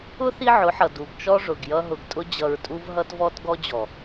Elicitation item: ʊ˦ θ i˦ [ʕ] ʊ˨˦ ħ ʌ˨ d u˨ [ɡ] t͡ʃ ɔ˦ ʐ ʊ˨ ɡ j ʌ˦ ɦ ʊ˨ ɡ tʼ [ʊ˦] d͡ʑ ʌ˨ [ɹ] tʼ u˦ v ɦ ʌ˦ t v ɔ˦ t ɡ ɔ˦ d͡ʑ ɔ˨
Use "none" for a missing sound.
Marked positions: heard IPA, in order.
ʕ, ɡ, ʊ˦, ɹ

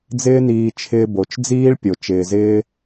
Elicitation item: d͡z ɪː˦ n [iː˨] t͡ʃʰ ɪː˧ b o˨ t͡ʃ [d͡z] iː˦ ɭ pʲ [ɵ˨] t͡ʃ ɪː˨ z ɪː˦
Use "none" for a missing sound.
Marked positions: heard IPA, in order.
iː˧, d͡z, o˨

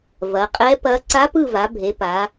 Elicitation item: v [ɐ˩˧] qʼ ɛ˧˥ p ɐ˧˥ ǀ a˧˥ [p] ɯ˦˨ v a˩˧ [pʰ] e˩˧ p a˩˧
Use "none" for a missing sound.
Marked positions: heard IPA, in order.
ɐ˩˧, p, bʱ

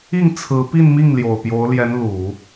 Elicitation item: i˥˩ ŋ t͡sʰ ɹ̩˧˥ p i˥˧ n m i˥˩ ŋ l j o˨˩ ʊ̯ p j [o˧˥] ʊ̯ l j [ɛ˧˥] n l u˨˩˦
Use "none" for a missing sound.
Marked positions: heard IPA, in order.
o˧˥, ɛ˧˥

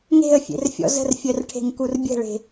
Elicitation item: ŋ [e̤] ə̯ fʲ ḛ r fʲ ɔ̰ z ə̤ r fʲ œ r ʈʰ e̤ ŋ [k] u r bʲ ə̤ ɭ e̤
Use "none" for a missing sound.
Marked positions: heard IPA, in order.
e̤, k

